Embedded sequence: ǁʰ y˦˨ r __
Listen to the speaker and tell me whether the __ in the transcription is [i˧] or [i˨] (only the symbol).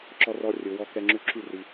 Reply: i˧